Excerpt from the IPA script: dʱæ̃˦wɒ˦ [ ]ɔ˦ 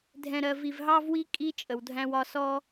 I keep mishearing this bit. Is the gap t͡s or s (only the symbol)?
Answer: s